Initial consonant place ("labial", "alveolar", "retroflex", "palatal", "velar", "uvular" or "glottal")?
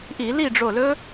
glottal